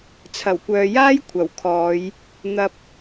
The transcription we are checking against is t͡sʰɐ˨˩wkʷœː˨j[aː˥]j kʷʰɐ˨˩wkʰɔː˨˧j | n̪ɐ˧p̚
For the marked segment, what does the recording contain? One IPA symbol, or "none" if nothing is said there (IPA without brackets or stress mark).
aː˥